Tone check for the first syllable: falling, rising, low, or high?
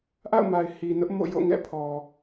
falling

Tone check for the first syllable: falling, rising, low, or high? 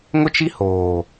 high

